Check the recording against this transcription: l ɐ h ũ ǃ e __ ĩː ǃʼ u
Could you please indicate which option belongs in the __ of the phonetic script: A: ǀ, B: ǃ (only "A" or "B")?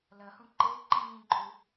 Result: B